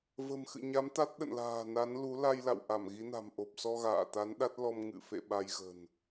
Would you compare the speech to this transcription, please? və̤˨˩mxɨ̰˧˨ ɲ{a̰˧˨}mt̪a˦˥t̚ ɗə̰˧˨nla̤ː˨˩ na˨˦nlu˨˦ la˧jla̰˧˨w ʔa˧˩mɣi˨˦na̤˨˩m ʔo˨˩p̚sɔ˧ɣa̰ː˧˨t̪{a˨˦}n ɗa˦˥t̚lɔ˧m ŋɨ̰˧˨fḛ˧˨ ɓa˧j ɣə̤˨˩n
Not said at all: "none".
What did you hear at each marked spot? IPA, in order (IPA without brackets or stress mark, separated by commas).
a˨˦, a˨˦